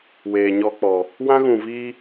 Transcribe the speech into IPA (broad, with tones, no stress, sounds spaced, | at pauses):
w eː˨ ɲ ɔ˧ k͡p ɔ˨ | w ã˦ ɣ ũ˨ v iː˧